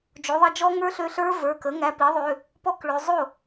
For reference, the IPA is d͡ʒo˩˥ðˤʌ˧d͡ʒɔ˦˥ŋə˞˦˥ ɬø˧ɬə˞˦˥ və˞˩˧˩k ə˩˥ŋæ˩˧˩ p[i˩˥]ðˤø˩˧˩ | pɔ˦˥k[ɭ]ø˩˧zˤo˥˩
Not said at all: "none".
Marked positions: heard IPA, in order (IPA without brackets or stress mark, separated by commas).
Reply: i˩˥, ɭ